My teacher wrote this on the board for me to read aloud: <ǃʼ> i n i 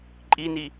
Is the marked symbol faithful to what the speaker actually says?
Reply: yes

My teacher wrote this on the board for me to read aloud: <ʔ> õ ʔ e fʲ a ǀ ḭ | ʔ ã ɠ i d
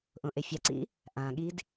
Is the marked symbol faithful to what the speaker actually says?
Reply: yes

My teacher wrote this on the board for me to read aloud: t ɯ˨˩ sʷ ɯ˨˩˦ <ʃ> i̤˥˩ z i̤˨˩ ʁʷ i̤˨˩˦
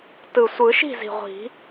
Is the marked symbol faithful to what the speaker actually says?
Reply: yes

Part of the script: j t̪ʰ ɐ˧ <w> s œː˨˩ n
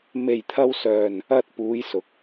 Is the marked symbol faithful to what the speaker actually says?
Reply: yes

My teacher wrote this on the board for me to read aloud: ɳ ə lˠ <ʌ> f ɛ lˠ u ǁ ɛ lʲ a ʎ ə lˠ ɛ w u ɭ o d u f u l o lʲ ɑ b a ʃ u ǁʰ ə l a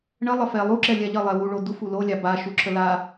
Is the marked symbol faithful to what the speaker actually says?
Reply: no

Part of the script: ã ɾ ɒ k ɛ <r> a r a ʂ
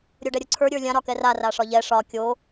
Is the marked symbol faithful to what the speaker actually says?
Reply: yes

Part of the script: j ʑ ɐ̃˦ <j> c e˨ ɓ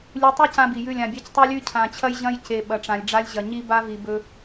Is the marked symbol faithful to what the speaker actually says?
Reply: yes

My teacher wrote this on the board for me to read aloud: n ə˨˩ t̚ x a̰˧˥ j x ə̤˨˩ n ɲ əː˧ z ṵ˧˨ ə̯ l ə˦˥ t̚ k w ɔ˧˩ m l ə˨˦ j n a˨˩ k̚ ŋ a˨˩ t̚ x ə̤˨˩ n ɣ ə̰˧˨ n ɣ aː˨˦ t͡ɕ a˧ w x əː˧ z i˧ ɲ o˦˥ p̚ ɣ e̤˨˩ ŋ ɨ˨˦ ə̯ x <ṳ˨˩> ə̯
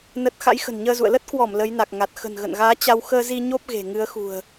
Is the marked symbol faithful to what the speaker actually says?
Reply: yes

